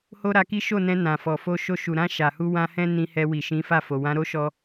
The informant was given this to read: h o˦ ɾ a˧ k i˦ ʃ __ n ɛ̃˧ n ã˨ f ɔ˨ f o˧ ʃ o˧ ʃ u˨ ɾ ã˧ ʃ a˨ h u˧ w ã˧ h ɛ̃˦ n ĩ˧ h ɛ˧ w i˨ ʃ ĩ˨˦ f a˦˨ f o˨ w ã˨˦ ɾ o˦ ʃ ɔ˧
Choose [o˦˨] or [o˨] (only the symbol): o˦˨